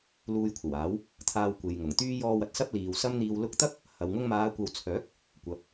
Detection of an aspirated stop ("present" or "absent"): present